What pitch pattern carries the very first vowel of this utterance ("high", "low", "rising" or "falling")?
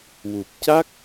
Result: low